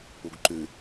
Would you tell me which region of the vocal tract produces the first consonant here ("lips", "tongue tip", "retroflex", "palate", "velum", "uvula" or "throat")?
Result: velum